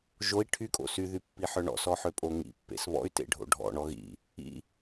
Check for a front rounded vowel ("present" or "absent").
present